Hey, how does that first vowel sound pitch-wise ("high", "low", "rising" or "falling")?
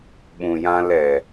low